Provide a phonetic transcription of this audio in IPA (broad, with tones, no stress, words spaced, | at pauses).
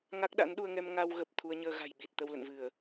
ŋa˦˥k̚ɗa̰˧˥nɗu˧ə̯ŋɛ˧m ŋa˧wɣə˨˩p̚ t̪ʰu˧ə̯ɲəː˧ɣa̤˨˩j ɓi˨˩t̚t̪ə˧wlə̰˧˨nvɨ˧˩˨ə̯